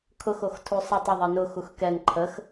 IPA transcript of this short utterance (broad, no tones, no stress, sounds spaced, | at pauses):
kʰ ʊ x o x tʰ u sˤ ə tˤ ə ðˤ ɜ n ʊ x u x k ɛ n ǃʰ ə x